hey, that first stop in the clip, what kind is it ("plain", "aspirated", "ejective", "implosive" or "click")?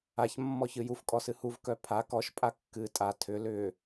ejective